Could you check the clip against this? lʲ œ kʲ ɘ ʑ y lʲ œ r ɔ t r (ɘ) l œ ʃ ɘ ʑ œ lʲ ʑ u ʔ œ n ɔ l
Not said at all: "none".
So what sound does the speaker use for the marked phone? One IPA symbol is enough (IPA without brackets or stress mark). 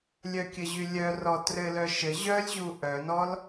ɘ